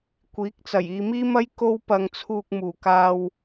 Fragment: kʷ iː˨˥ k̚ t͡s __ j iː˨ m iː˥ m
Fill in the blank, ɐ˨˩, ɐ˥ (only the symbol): ɐ˨˩